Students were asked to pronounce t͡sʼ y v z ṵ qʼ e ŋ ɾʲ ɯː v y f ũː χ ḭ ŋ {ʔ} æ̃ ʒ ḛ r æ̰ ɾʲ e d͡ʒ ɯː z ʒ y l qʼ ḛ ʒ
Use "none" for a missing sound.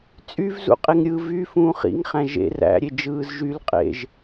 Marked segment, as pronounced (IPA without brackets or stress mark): χ